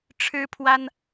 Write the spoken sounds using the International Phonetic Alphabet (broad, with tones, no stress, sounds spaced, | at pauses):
ʈ͡ʂʰ ɻ̩˥ pʰ w a˥ n